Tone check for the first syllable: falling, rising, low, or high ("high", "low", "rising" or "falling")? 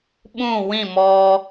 falling